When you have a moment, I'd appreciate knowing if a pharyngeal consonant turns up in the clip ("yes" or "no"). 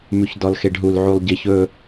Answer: yes